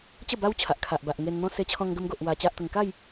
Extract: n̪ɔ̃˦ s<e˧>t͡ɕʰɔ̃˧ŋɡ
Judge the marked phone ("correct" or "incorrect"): correct